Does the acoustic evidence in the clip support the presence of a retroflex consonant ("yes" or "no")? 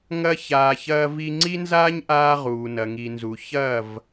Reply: no